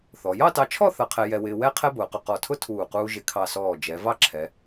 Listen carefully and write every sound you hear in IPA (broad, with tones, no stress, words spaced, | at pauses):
θɔ˩˧ jɑ˥˧tɑ˧t͡ʃʰɔ˥˧ θʌ˧qʰɛ˧ jɛ˧wɪː˧wɛ˥ qʰɛ˥bʊː˩˧qʊ˧˩ qɔ˧˩tʰʊ˥ tʰuː˧˩quː˧ ʒɪ˧˩kʰɑ˧˩sɔː˧˩ d͡ʒɛ˩˧ vɑ˥˧ǁʰɛ˩˧